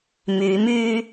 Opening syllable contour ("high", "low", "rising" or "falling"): rising